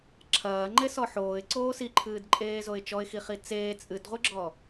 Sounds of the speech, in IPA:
ǁʰɐː ŋ͡ǃesɔħoːɪ̯ ǀoːsiǃʰɨːd ǃʼeːzoɪ̯t͡ʃɔɪ̯xi χit͡seː t͡sʼɨdʁʷɨɡ͡ǁɔ

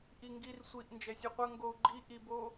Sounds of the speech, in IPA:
ʔiŋɡir sʷiʔ nd͡ʒɛsʲuqʷɐ ŋɡou̯ɡ͡ǃi ʔibo

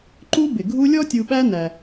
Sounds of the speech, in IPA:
ǃu˦bɪ˩ ɡʱu˦lʲɔ˥ tʲu˨ɓæ˦næ˩

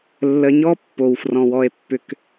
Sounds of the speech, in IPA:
lːə˨ɲɔ˦ pːo˨wfrɔ̃˨wɔ˦e̯pːʏ˦k

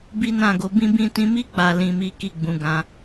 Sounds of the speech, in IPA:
bi˦nã˦˨ɡo˨˦ bĩ˦bĩ˦ tĩ˧mi˦ k͡pa˧ lĩ˨mi˨˦ ki˦˨ɡ͡bũ˨˦ ɡã˧

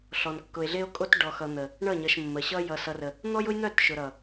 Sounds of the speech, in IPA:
ɬɔ˨nkːʊ˨e̯ɮe˦o̯kʼo˦t ɖɔ˨xʌ˨ n̪ə˨ | ɳʌ˦˨ɲʌ˨ʃ mːə˨ ɕʌ˦jʌ˨ sʌ˨rə˨ | n̪ɔ˦jʊ˦jn̪œ˦˨t ʃʊ˨ɾʌ˨

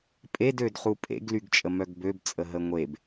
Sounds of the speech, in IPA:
pʼedød χupʼḛɡlyɡ t͡ʃʼəmœɡbøbt͡sʼə ɦəŋʷeb

